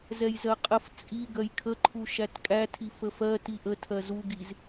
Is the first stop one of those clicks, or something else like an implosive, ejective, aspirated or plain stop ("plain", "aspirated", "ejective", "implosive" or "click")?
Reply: ejective